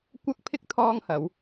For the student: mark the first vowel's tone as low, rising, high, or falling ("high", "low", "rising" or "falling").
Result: high